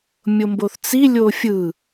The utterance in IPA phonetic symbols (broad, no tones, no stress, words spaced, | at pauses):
mʲomboθt͡si lʲofʲɯ